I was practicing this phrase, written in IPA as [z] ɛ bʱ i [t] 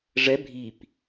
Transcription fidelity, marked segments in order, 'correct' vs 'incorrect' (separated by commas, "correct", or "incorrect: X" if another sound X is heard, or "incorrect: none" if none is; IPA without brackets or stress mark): incorrect: ʐ, incorrect: p